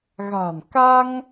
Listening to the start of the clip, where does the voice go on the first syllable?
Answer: low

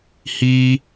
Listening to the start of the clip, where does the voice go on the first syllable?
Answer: high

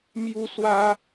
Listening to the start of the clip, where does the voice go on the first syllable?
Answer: high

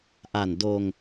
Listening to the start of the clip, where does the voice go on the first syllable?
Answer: low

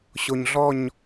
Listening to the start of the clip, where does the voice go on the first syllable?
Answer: low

